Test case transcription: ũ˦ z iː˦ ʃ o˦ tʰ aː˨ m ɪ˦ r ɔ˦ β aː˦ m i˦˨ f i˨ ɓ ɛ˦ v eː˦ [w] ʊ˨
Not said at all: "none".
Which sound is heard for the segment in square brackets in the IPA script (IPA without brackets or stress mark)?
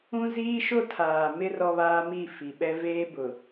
b